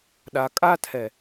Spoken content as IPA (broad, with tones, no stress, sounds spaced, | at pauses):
ɗ a˨ kʼ a˦ tʰ ɛ˨